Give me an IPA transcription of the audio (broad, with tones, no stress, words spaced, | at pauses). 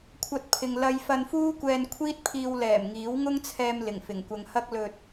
kʷʰɐ˧t̚ pʰɪ˨ŋlɐ˧jfɐ˧nfuː˥ kʷɛː˧nkʷʰiː˥t̚pʰiː˧wlɛː˨˩m ŋiː˨˥wŋʊ˥ŋt͡sʰɛː˧m lɪ˨˩ŋfɪ˨˩ŋkʷɐ˧ŋ hɐ˥k̚lɵ˧t̚